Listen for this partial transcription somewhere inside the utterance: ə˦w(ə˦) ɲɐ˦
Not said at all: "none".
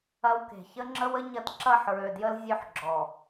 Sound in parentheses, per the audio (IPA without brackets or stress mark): ə˦